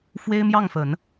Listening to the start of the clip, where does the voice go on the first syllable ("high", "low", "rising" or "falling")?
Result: high